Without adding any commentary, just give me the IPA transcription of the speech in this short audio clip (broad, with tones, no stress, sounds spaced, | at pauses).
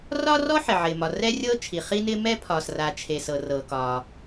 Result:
r ɒː˥ r ɔ˥ ħ ɪ˩ ʕ ɪː˩ m ɒ˩ r ɛ˥ rʲ ɤː˥ t͡ʃʰ i˩ χ i˥ n ɪː˥ m ɛ˥ pʰ ɒː˩ s r a˩ t͡ʃʰ e˩ s ɤ˩ r ɤː˩ k ɒː˩